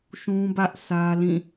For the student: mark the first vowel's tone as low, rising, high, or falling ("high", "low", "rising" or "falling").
high